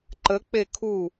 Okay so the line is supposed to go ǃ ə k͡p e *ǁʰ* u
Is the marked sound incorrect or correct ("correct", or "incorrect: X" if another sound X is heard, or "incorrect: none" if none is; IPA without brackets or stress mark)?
incorrect: kʰ